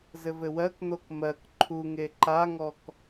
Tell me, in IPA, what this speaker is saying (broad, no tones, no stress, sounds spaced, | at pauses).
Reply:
z ɘ v ɘ w ɜ k n̪ o k m ɜ k ǃʰ u ŋ e ǃ a ŋ ɔ k